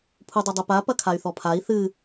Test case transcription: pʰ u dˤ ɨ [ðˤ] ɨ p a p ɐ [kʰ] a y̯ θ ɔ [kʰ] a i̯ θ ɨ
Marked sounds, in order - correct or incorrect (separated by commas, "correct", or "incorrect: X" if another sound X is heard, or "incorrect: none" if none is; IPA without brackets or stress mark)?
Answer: incorrect: dˤ, correct, incorrect: pʰ